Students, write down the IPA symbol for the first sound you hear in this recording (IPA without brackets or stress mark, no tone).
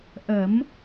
ʔ